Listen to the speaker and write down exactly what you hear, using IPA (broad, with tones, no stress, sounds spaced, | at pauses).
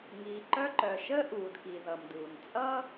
ŋ iː˩ ǃ œ˧ ǃ œ˩ ʃ ə˥ ʔ uː˩ d k i˩ ð ʌ˩ m d uː˩ n t͡sʼ ʌ˥